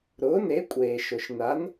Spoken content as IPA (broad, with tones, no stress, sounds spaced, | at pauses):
ɾ ʊː˩˥ n e˩˥ kʷʼ eː˩ ʃ ʊ˩ ʃ n a˩˥ n